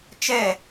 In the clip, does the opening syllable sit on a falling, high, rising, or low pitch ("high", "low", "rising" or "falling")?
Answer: falling